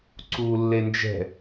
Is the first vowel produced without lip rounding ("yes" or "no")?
no